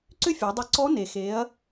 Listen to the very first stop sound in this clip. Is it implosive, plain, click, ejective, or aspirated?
click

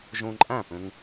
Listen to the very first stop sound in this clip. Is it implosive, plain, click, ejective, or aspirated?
click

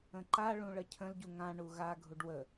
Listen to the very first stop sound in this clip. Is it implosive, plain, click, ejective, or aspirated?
click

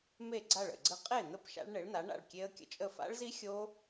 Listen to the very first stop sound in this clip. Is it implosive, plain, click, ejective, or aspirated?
click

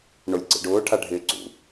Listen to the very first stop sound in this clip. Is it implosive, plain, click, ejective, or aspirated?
click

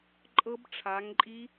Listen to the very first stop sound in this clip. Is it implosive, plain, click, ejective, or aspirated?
click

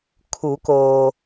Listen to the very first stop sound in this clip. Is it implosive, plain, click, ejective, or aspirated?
aspirated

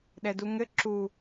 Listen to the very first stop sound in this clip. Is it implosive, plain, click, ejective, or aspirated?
implosive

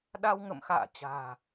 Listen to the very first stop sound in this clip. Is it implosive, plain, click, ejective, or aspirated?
implosive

